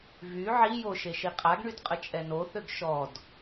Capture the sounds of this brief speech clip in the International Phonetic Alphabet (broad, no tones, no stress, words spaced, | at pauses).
vy ʕijo ʃeʃiqʼaɡɳyd qʼət͡ʃʼɛnoθøɡ ʃɔd